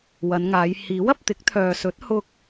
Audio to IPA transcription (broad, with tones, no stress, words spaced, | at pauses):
wɐ˨˧nŋaː˨˧j hiː˨˥wɐ˧p̚t̪ɪ˨˥k̚ t̪ʰœː˨sɵ˨˥t̚hʊ˧k̚